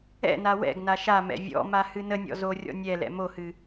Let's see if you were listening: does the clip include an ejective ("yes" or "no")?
no